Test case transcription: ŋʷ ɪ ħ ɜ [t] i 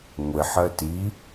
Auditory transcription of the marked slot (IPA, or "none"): t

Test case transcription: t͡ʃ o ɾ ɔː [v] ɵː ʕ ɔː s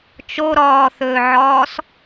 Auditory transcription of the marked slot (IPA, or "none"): θ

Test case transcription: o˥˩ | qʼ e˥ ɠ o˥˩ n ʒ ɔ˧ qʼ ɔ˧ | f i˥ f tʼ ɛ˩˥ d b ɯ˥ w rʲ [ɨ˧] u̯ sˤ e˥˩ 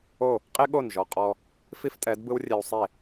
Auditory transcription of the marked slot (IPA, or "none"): e˧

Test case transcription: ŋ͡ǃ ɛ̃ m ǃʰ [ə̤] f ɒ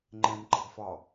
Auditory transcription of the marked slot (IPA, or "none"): ə̤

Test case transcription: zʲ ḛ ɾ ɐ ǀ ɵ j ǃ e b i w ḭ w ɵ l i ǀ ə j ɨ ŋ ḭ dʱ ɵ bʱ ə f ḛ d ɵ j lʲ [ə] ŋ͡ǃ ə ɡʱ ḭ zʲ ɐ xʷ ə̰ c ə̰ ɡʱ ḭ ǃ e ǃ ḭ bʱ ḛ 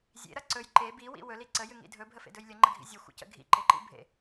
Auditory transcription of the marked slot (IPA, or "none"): ə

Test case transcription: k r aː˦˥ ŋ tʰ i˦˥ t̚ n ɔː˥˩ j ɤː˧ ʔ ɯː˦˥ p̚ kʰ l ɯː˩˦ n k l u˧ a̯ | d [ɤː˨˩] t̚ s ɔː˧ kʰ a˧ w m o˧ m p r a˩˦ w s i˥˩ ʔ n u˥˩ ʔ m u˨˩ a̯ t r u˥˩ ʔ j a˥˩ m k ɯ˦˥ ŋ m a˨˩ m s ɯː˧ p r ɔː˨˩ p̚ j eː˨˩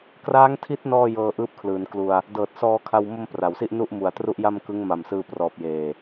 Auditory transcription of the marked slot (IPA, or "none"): ɤː˨˩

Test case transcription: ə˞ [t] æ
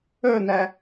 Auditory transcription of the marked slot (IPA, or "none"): n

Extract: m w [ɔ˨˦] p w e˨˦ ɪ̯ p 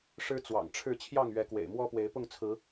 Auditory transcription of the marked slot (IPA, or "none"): ɔ˦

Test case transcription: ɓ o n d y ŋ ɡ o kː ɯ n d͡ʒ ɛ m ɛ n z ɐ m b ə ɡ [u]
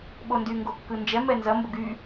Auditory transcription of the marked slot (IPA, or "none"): y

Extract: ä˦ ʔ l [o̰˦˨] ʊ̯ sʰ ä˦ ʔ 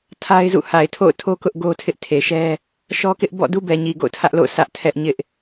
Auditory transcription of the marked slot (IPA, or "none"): o̰˦˨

